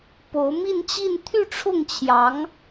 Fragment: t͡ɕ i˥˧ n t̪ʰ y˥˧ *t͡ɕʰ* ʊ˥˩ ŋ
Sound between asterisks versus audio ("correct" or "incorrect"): incorrect